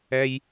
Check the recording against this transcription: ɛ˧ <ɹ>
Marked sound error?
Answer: yes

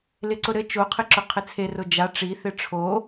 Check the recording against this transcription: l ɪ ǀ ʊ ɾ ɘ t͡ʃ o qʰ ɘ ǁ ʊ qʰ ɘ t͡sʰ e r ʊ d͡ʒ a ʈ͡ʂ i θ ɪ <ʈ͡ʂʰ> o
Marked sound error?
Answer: no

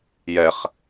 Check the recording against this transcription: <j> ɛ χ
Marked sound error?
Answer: no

